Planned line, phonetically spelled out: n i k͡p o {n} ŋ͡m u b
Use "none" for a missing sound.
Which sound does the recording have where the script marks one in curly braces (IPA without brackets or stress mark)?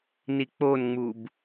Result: n